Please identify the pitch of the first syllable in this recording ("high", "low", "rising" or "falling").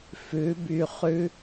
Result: rising